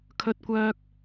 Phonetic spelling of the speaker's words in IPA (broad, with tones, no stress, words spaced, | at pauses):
kʰɵ˧t̚ kʷœː˧k̚